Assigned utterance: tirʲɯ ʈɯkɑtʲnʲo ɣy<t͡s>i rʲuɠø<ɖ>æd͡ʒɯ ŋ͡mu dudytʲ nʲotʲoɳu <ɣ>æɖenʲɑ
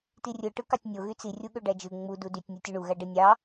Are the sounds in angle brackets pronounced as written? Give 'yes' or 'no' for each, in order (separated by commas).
yes, yes, yes